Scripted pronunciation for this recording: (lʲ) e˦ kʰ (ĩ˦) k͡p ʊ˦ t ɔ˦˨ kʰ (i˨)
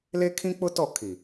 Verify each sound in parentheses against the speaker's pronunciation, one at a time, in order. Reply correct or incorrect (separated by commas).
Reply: incorrect, correct, correct